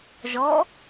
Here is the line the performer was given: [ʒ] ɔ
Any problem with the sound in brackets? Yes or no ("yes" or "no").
no